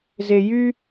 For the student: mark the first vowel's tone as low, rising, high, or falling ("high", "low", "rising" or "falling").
low